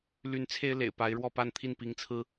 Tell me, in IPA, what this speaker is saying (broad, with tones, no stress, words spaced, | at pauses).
ly˧˥n t͡sʰe˥ɪ̯lḛ˨˩ɪ̯ pa˧˥ɪ̯ɻwɔ˥˧pa˥˧n t̪ʰi˥˩npi˧˥ŋt͡sʰɹ̩˥